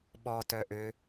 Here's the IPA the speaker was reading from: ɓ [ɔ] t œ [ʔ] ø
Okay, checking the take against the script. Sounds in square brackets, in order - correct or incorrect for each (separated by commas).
correct, correct